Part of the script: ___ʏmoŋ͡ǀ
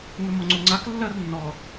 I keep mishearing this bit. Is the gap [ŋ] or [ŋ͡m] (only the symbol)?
ŋ